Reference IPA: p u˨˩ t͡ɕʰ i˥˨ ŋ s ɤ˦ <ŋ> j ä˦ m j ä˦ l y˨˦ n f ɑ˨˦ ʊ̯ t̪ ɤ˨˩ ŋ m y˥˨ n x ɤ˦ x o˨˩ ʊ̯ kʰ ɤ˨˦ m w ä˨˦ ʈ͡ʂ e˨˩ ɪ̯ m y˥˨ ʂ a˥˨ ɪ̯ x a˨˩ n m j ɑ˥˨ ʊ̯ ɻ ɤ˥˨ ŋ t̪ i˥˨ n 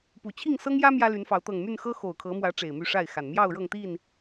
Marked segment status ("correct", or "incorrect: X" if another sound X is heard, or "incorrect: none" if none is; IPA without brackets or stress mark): correct